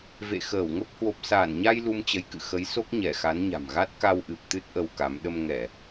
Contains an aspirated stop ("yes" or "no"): no